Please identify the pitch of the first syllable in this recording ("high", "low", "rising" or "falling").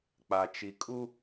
low